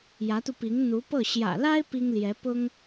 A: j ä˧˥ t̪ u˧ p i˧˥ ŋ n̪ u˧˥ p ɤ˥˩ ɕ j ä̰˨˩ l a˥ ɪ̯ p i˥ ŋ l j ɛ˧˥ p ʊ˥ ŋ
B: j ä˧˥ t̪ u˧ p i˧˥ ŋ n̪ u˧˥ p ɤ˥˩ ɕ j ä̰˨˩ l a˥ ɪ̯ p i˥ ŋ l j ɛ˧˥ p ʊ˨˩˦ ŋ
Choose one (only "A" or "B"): A